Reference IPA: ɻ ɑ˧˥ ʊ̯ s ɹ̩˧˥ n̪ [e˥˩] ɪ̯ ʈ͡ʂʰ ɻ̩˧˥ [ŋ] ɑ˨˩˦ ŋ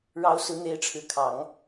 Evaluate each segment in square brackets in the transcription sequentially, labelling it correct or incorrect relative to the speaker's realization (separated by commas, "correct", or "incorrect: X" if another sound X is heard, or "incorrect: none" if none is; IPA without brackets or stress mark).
incorrect: e˧˥, incorrect: kʰ